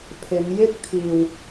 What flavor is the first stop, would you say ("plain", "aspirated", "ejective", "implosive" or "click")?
aspirated